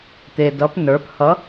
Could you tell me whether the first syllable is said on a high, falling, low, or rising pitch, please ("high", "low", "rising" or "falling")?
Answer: low